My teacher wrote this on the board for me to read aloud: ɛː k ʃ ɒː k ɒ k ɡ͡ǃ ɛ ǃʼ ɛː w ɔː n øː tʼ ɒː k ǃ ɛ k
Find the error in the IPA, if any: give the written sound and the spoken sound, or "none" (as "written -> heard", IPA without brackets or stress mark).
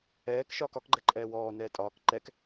øː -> ɛː